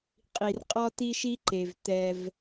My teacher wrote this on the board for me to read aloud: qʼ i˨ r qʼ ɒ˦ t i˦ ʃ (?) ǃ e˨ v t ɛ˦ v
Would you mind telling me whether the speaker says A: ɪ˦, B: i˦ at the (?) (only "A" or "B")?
B